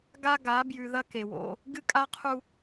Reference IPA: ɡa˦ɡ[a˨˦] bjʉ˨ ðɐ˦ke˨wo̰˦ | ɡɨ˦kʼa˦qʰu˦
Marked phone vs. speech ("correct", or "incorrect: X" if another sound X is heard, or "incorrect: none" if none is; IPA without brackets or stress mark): correct